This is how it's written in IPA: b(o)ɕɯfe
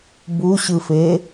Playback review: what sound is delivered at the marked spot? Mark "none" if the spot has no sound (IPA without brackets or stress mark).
u